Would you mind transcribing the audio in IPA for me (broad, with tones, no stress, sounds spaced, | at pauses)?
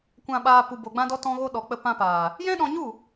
kʷ ã˨ ɓ aː˨ p u˨ b o˨ ɡ͡b ã˧ d ɔ˧ t ɔ̃˧ ɣ o˧ ɗ ɔ˨ k͡p ə˧ p ã˧ p aː˨ | j ɛ̃˦ ɗ ɔ̃˧ ɲ u˦˨